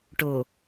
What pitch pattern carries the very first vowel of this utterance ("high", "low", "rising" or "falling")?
low